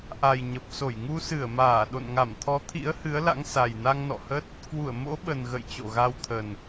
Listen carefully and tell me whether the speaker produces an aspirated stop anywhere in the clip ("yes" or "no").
yes